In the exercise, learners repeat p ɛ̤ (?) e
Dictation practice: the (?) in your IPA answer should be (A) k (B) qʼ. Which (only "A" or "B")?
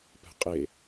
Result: B